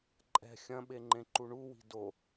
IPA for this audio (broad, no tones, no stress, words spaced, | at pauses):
ǃʼɛ̤ xʲɐ̃ɓeŋ͡ǃẽǃu ɳuwi̤ do